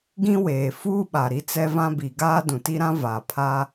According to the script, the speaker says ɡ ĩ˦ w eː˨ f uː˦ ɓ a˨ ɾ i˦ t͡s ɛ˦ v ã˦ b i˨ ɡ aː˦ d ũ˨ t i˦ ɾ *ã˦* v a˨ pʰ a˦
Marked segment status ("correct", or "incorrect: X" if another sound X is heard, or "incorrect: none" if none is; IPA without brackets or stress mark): correct